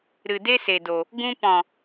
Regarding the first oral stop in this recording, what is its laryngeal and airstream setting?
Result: plain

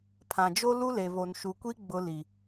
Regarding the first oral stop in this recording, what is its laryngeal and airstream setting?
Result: aspirated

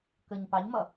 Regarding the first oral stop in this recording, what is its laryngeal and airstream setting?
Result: plain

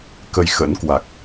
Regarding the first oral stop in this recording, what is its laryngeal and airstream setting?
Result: plain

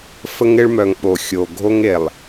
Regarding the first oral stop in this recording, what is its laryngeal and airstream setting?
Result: implosive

